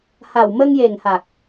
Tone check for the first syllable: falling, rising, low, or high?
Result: low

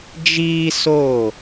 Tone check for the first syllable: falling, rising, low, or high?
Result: high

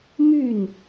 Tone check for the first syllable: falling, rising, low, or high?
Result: falling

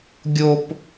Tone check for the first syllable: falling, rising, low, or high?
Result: high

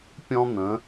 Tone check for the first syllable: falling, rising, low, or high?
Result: high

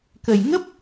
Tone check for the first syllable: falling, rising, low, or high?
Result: low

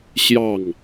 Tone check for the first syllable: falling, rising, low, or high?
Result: falling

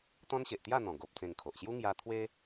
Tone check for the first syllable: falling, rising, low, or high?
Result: high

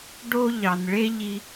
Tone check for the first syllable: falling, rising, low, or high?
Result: high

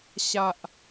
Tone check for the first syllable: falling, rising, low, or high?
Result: low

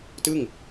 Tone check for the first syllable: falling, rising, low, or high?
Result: falling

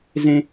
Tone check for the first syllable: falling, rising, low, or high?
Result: high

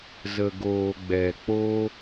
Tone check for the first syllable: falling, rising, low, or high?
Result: low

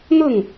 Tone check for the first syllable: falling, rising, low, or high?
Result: falling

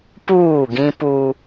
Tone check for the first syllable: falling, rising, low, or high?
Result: falling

